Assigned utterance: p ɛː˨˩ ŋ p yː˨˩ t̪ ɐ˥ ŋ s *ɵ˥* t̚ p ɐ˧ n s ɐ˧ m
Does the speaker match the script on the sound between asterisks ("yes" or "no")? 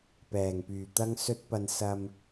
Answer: yes